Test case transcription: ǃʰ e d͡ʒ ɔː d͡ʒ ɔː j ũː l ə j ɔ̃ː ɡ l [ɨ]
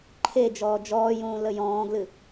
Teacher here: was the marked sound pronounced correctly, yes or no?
yes